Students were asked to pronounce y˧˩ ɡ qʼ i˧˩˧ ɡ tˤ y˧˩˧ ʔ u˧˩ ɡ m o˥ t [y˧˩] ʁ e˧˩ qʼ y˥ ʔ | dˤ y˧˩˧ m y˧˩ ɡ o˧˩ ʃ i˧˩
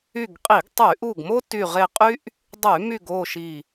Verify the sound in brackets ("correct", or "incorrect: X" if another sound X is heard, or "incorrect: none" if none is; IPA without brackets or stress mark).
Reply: correct